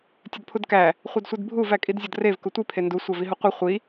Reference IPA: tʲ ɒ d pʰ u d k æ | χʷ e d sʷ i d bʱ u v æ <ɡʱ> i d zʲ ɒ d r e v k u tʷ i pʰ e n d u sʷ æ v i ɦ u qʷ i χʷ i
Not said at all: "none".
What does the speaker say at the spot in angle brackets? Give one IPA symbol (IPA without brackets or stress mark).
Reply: kʼ